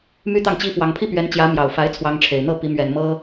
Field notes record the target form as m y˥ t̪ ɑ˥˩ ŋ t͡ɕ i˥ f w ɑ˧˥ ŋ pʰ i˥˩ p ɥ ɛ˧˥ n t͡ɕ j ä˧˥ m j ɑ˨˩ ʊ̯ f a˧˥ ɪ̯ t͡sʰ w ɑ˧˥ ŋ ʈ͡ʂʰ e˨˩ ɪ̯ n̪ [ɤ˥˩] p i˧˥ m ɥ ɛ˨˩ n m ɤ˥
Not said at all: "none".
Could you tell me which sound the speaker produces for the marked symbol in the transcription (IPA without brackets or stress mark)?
ɤ˥˩